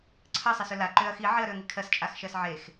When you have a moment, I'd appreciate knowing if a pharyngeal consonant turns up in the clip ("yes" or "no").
yes